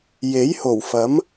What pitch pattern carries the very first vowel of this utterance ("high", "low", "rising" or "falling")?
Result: rising